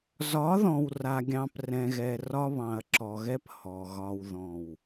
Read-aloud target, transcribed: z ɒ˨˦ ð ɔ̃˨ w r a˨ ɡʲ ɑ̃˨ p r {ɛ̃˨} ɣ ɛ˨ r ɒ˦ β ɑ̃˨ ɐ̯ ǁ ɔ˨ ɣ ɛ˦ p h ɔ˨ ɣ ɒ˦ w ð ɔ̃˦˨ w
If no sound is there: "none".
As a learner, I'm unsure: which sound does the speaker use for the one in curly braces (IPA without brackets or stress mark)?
ɛ̃˨